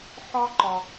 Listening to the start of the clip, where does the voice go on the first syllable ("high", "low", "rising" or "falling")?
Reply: high